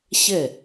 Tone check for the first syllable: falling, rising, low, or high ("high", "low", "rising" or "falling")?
falling